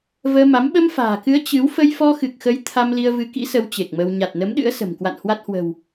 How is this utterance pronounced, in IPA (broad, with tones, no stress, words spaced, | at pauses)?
vəː˧ma˨˦m ɓə˧mfa̤ː˨˩kɨ˨˦ə̯ t͡ɕɨ˨˦w fə˧jfɔ˧xɨ˨˩k̚xə˨˦j t̪ʰa˧mli˧ə̯ vɨ˨˦kḭ˧˥sə˨˦w t͡ɕe˨˩k̚mə˧w ɲa˨˩t̚nə˨˦mɗɨ̰˧˥ə̯sə̤˨˩m kwa̰˧˨nhwa˦˥t̚hwə̤˨˩w